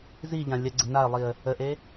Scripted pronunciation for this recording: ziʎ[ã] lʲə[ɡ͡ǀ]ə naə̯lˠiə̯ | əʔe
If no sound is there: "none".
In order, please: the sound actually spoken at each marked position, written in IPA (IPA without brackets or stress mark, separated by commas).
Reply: ã, ɡ͡ǀ